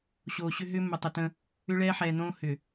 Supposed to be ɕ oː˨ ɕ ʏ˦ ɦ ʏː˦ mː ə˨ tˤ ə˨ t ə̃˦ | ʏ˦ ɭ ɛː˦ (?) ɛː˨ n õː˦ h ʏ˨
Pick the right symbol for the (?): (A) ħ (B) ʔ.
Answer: A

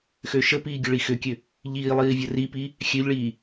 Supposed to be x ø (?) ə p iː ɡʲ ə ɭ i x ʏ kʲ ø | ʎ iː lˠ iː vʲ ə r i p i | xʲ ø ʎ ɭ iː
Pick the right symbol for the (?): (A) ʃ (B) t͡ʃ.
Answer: A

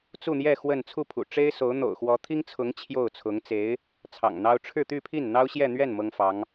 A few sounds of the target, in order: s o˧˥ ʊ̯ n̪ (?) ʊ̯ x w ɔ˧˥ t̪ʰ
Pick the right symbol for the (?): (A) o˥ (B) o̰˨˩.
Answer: B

